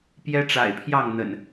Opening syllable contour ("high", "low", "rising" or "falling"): high